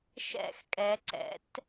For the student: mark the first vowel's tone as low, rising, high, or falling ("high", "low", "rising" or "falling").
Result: falling